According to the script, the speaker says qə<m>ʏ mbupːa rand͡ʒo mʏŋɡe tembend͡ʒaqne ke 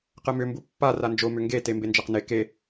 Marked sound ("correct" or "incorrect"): correct